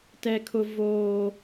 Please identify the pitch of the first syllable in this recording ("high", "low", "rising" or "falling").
high